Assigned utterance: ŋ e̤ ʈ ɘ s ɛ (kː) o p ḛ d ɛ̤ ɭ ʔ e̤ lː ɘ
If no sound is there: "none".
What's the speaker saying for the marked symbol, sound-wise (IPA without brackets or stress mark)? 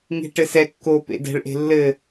kː